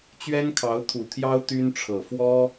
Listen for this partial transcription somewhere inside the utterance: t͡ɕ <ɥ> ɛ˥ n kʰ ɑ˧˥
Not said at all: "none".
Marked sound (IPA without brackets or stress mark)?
ɥ